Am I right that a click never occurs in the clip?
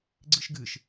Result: no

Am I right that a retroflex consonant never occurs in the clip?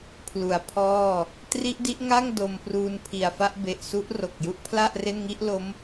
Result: yes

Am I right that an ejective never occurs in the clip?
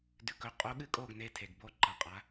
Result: no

